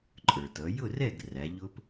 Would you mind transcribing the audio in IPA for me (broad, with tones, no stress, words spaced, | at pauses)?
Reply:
ǃʼə˞˩tʌ˩˧ jʊ˥˨rɛ˥˨ɡ ræ˩˧ʎʊ˦˥p